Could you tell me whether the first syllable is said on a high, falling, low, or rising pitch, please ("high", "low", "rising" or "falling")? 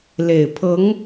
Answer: low